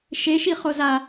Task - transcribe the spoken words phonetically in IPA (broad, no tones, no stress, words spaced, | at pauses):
ʃeʃiχoza